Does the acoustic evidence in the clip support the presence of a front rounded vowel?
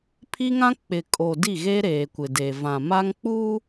no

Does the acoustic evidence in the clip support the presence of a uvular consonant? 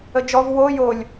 no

